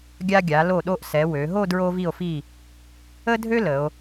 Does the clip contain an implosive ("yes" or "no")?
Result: yes